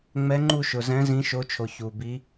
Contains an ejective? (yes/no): no